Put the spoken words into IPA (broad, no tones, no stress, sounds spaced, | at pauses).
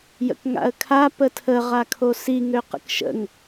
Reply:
j ə̰ k ŋ a̰ ə̯ kʰ a p ə tʰ ə ʁ a kʰ o s i ŋ ø q ə̰ k ʃ ə̰ ŋ